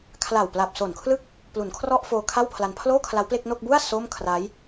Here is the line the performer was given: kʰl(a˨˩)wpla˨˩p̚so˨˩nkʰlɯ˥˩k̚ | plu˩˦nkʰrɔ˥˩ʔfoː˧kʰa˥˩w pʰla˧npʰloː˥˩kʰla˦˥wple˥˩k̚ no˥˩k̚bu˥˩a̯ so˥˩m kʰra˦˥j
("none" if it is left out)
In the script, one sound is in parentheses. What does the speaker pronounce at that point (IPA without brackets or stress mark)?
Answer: a˨˩